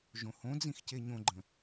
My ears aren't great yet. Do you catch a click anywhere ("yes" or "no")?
yes